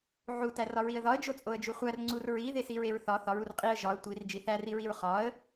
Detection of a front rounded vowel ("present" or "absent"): absent